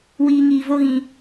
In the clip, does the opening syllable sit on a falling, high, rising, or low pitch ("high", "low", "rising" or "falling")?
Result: low